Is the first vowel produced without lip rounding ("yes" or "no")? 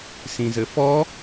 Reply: yes